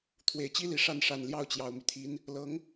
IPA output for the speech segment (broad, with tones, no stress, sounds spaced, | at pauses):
t̪ʰ w e˨˩ ɪ̯ t͡ɕ i˥ l i˨˩ ʂ a˥˩ n ʂ a˨˩ n l j ɑ˥˩ ʊ̯ t͡ɕ j ɑ˨˩ ʊ̯ m y˦ t̪ʰ i˧˥ n | l ɤ˧˥ ŋ